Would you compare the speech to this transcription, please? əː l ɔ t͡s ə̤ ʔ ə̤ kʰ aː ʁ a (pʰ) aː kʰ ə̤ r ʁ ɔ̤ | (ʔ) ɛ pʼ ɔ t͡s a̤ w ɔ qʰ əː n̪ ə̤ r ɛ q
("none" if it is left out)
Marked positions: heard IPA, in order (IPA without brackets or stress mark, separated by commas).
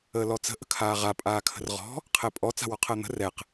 pʼ, qʰ